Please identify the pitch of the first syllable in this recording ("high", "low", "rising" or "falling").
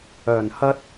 low